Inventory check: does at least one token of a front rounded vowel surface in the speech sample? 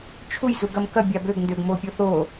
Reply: yes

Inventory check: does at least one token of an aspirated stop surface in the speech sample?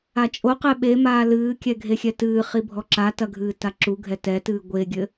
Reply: no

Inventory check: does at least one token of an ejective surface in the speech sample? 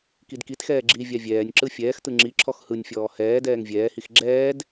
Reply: no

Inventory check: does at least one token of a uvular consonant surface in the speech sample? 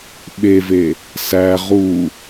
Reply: yes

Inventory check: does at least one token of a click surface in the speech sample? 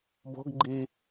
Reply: yes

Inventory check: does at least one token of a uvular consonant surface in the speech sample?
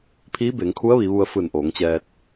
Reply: no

